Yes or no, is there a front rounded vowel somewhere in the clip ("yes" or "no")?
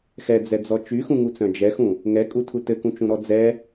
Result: yes